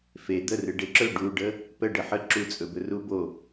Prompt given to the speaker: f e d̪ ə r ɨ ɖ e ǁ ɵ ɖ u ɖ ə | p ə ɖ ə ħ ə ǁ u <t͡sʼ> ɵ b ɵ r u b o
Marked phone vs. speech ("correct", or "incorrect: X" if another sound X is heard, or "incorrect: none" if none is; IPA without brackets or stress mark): correct